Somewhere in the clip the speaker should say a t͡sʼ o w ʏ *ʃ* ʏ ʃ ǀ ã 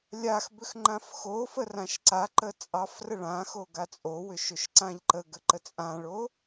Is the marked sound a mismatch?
no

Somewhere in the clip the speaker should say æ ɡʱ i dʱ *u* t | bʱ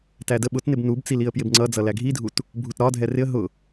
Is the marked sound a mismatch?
no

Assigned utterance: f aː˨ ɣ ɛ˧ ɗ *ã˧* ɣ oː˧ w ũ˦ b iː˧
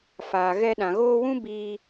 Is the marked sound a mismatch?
yes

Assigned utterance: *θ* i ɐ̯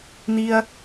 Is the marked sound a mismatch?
yes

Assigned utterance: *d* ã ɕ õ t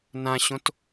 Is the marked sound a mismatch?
yes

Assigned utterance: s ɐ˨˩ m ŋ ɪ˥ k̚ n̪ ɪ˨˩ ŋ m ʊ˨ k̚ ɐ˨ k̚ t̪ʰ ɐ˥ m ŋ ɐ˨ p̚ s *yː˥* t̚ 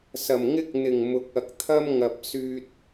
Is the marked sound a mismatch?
yes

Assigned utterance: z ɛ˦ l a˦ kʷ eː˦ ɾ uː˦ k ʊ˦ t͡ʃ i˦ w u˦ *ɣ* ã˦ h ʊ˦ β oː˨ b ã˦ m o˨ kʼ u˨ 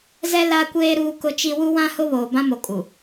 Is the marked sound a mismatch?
yes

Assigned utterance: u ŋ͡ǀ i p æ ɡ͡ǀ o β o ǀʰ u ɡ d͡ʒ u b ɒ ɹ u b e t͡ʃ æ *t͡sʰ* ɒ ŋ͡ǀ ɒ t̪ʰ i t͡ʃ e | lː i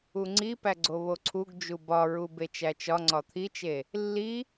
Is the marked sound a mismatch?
yes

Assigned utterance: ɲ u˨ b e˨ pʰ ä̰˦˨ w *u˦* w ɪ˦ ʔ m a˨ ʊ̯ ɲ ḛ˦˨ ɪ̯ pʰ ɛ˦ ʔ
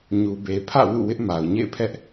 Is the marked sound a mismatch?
yes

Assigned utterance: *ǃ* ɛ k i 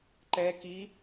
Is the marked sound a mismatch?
no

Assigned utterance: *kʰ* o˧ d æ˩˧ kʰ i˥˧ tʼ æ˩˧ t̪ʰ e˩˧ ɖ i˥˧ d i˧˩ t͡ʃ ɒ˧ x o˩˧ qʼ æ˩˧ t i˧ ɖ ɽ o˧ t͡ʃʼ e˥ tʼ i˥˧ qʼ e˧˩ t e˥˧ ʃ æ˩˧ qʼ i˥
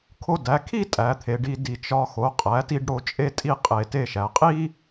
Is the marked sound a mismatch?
no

